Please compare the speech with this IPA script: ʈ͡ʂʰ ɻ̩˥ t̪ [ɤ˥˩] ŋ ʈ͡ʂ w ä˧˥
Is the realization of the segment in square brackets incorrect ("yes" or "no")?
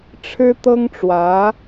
yes